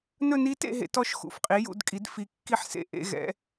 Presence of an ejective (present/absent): present